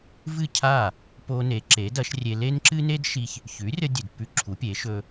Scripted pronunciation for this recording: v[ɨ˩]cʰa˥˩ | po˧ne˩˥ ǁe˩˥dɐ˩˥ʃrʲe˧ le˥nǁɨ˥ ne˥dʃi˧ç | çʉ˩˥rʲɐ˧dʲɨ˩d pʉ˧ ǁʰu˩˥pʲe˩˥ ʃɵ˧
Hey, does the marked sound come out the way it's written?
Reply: no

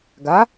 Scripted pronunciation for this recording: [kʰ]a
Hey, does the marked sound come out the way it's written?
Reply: no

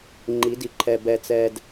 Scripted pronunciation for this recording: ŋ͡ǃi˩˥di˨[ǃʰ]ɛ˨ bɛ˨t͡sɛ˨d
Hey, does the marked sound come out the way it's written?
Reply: yes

